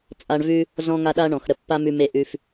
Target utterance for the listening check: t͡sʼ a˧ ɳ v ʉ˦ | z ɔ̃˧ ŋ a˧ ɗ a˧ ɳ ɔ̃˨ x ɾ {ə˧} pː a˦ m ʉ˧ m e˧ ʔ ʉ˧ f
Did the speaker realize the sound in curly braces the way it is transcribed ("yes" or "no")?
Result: yes